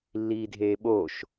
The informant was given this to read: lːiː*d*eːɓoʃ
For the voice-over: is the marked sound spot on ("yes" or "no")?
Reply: no